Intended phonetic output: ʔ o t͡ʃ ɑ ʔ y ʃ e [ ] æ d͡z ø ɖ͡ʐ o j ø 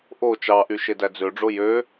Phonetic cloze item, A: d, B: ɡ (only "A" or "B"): A